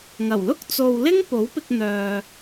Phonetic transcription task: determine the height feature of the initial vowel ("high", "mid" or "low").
low